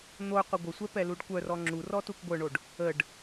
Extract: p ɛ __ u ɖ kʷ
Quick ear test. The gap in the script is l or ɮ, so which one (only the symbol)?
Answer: l